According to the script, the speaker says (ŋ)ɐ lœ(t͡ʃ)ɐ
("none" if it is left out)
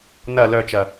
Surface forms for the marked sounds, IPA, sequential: n, t͡ʃ

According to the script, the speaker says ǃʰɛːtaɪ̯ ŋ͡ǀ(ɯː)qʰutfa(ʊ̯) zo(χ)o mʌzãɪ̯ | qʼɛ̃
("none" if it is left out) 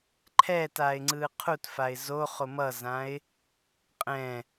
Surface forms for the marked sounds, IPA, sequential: ɯː, ɪ̯, χ

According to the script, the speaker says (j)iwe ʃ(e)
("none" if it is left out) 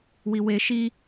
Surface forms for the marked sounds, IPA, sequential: w, i

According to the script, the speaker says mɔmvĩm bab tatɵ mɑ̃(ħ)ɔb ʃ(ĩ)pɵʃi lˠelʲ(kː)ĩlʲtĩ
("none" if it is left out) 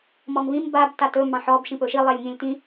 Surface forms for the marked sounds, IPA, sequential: ħ, ĩ, ŋ

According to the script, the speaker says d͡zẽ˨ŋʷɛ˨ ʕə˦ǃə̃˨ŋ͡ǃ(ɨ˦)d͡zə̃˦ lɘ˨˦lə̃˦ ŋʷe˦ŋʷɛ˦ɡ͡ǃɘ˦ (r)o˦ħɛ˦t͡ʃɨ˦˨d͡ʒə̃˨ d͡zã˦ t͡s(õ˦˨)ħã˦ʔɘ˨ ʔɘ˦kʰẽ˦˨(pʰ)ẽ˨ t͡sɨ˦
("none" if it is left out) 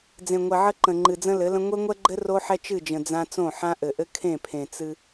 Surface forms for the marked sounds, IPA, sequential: ɨ˨, r, õ˦˨, pʰ

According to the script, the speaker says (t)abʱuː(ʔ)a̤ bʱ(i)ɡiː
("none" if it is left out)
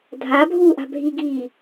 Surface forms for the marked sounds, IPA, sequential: dʱ, ʔ, i

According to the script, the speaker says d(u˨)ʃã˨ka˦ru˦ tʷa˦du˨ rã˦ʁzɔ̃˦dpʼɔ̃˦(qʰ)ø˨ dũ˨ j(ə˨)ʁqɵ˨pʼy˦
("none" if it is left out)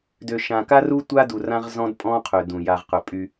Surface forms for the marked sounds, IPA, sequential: ø˨, qʰ, a˨

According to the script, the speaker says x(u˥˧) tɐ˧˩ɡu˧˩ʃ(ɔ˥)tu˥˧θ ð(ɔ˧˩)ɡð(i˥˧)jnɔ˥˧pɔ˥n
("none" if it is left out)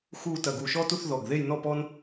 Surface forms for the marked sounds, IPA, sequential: u˥˧, ɔ˥, ɔ˧˩, e˥˧

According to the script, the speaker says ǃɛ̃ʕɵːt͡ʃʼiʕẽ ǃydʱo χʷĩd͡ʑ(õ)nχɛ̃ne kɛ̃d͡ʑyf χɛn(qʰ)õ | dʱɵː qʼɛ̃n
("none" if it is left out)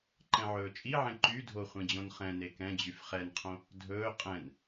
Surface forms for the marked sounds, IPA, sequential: õ, qʰ

